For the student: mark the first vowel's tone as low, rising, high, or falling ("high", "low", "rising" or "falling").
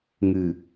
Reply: low